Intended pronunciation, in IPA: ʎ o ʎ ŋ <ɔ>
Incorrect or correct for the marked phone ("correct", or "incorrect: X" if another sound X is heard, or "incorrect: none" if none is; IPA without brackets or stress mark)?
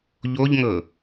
incorrect: ɤ